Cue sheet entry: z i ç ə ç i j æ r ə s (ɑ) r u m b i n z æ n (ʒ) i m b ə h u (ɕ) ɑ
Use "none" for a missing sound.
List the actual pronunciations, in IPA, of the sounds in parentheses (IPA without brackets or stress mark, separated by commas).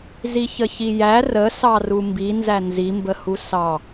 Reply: ɑ, z, s